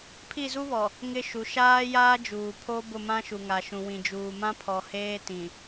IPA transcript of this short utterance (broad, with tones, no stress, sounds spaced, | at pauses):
pʰ i˦˨ z u˦ β ɔ˨ | ŋ ɪ˦ ʃ u˨ ʃ aː˦ j aː˦ d͡ʒ uː˨ pʰ o˦ b ʊ˦˨ m ã˦ ʃ u˨ ŋ a˨ ʃ ũ˨ w ĩ˨ d͡ʒ uː˨ m ã˦ pʰ ɔ˨ h eː˦ t ĩ˨